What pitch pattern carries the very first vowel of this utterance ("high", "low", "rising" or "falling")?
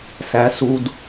rising